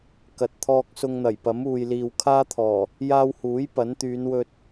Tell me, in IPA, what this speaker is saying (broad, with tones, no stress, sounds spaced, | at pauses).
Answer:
k ɐ˨ t̚ t̪ʰ ɔː˧ k̚ s ʊ˧ ŋ n̪ ɐ˨˩ j p ɐ˨˥ m uː˨ j l iː˨ w kʰ aː˥ t̪ʰ ɔː˨˩ | j aː˧ w h uː˨˥ j p ɐ˨˥ n t̪ yː˨˧ n w ɵ˧ t̚